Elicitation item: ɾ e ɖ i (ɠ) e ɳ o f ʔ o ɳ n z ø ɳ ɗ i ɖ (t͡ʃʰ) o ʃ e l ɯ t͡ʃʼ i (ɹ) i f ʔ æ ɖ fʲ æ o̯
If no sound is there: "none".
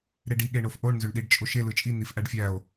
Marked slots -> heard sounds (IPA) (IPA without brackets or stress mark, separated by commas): ɠ, t͡ʃʼ, n̪